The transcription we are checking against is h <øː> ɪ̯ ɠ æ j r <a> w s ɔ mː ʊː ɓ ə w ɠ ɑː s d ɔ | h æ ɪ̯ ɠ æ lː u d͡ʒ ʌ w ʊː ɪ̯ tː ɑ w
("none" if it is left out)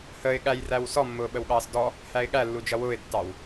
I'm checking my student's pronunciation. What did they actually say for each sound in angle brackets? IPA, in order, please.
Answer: əː, æ

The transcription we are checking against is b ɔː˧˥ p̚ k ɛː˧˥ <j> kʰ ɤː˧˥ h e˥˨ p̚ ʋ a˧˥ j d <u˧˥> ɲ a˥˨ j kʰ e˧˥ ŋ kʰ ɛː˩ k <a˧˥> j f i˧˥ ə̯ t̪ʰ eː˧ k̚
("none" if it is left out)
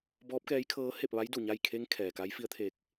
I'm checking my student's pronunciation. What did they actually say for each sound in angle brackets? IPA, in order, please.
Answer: j, u˧˩, a˧˥

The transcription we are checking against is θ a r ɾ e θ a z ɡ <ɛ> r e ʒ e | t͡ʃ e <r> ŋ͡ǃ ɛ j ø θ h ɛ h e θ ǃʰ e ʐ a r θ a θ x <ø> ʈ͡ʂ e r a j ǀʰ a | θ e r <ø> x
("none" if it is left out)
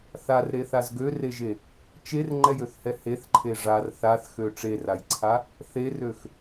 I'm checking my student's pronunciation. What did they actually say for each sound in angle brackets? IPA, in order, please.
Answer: ø, r, ø, ø

